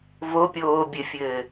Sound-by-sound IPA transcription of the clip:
vopʲoː bʲɘfʲɘː

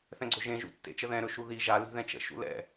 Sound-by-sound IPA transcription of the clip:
θɛ̃ɡ͡ǀɵʒẽ ʒṵtːḛt͡ʃəðɛ̃ ɾɵʃuði ʒa li̤ðɛ̃t͡ʃə̰ ʃṵlɛ̰

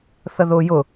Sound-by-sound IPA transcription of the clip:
θəðʊːjʊ

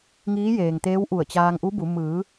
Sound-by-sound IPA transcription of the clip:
ŋiː˧˥jeː˩ŋt̪eː˧˥wʔu˧˩ə̯ t͡ɕaː˧ŋʔu˧˥bu˩˧ mɯː˩˧

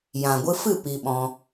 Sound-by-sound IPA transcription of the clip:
jã˨ɡʷɨ˧ fɨ˦˨ pi˧ɓɔ̃˧

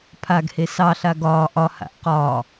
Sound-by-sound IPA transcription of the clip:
pʰaɡhe sɑɬa ɡɒː ʔɒha̰ʔ qɒː

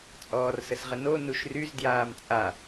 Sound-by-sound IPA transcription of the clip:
t͡sʼɔːrsəsʁəno nuʃryz djaːmt͡sʼa

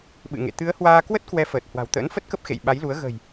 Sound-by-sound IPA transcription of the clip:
ɓɨ̰˧˨ŋḛ˧˨ t̪ɨ˨˦ə̯hwaː˧ kwə˦˥t̚ kwɛ˨˦fəː˨˩t̚ hwa̤˨˩wt̪ə̰ː˧˥nfə˦˥t̚kə˦˥p̚ xḛ˧˨j ɓa˨˦jlu˨˦ə̯ ɣə̤˨˩j

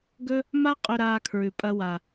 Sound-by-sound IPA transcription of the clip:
ɡɵ˥ | ma˥ qʼɵ˧ ɾaː˧kʰɹʉ˩pʼɐ˧ wa˩

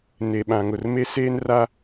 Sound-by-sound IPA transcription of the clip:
ne˨ɓã˨ŋʊ˨r me˦seː˦nra˦

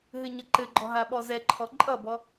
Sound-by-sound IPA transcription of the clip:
ɦɘɲʌǃɘɡ͡ǃɔ ɦaɓɔzɛǃʰɔ ǃʼʌbɔ

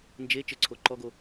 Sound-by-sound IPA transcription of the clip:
nd͡ʒe t͡ʃɘǀʰo ǃɔɡo

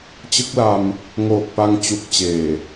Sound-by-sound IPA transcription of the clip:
t͡ɕɯ˦˥k̚la˧m | ŋoː˨˩k̚pa˧ŋ t͡ɕu˨˩k̚t͡ɕeː˨˩

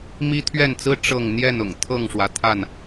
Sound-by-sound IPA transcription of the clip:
mi˦ t̪ʰɥɛ˥˨nt͡sɹ̩˦ ʈ͡ʂɤ˥˨ŋ n̪jɛ˥˨nʊ̰˨˩ŋ t̪ʰɤ˥˨ŋʂwä˩ t̪ʰa˥˨n

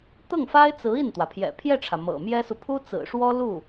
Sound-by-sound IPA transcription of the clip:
t̪ɤ˥˩ŋ fa˥ɪ̯t͡sɹ̩˧˥ i˥˩nt̪wä˩pʰjɛ̰˨˩ pʰjɛ˥˩ʈ͡ʂʰä˩ mɤ̰˨˩ mjɛ˥su˨ pʰu˥t͡sɹ̩˨˩ʂwɔ˥ lu˥˩

